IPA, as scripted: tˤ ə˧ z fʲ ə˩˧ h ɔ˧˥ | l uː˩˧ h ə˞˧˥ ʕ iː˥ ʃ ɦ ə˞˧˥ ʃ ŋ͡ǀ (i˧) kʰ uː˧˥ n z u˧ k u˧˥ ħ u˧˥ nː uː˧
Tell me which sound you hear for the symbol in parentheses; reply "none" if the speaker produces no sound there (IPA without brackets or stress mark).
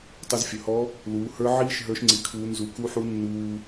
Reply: i˧